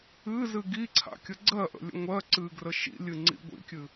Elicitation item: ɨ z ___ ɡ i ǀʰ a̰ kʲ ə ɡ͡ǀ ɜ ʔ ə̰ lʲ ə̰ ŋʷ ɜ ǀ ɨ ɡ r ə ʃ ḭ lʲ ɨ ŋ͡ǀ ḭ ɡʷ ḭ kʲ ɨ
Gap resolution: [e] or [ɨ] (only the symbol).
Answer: ɨ